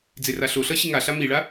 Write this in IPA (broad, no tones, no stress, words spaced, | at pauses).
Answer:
d͡zeraɬoɬʌ ɕiŋaɬa miɭa